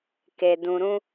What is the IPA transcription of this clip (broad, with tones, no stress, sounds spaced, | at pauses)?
k e˧ d ũ˧ ɾ ũ˦